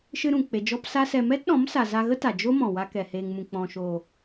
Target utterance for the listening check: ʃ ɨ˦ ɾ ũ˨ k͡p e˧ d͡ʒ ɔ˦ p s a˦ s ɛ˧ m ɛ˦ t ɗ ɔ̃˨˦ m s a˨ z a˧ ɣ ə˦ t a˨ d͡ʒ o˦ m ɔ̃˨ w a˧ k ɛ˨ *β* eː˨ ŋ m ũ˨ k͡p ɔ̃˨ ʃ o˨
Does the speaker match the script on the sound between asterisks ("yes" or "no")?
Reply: no